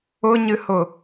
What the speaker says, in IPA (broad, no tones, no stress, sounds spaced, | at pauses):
ʊ ɲ ɨ h ʊ